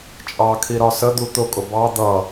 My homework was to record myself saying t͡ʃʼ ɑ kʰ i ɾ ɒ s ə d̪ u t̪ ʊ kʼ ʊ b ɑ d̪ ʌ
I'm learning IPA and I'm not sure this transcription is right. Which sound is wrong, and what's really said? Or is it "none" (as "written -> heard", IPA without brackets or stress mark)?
none